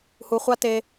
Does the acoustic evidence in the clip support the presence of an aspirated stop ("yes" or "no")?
no